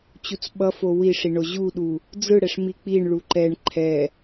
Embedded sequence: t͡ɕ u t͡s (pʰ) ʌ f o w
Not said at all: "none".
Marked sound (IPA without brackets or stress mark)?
ɓ